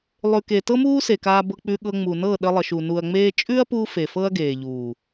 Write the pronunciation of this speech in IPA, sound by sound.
lˠ ʉ˨ k e˨ t ɤ˦ m uː˦ s e˨ k aː˧ b ɤ˧ k͡p ʉ˧ ɠ ɤ˧ ŋ͡m u˨ n ɤ˦˨ ɗ ə˧ lˠ ə˨ ʃ u˨ n u˨ ɐ̯ ŋ͡m eː˧ t͡ʃʼ ʉ˦ ɐ̯ p u˧ f e˨ f ɤ˦ ɐ̯ ɡ eː˨ ʎ uː˨

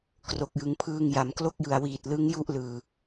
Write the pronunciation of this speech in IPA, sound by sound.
k r o˨˩ k̚ j ɯ˩˦ ŋ pʰ ɯː˧ ŋ j a˩˦ m k l o˥˩ k̚ j ɯ˨˩ a̯ w iː˨˩ t̚ l ɯ˦˥ ŋ j u˥˩ ʔ l ɯː˨˩

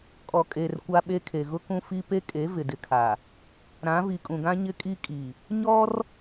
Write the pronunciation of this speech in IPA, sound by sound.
kʼ ɔ˨ kʼ eː˨ r kʷ a˦ ɓ e˦ kʰ e˨ ɣ ʊ˦ k ũ˦ f i˦ p e˦ kʼ e˨˦ v ɪ˨ d ɪ˨˦ kʰ a˨ | ɾ ã˨˦ v i˨ kʼ ũ˨ ɡ ã˦ ɲ ɪ˦ kʼ i˦ kʼ i˨ | ɲ ɔ˦ r

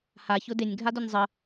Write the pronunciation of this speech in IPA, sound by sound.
h a ç ʊ d e nʲ ɡʱ a d ʊ nʲ zˤ ə

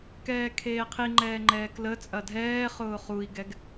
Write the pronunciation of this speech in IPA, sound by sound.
k ɛː kʰ eː qʰ i ŋ͡ǃ ɛː ŋ͡ǃ ɛː k l ə t͡sʼ ɐ dʱ ɛː χ ʊː χ u i̯ ɡ ɛ ɡ

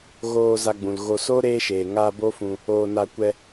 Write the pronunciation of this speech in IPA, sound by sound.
ɣ oː˧ z a˧ ɡ͡b ũ˨ l ɣ o˧ s o˦ ɾ eː˦ ʃ eː˨ ŋ a˧ b o˦ f ũ˧ | oː˧ n a˧ kʷ ɛ˧

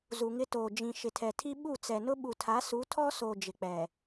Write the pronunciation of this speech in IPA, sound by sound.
z u˨ ŋ ɪ˦ t oː˨ d͡ʒ ĩ˨ ʃ ɪ˨ tʰ ɛ˨ tʰ i˦ ɓ u˦˨ t͡s ɛ˨ n ʊ˦ ɓ u˨ tʰ a˨˦ s u˨˦ tʰ ɔ˦ s o˨ d͡ʒ ɪ˨ k͡p ɛ˨

